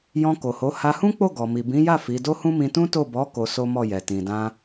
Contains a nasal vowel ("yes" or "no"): yes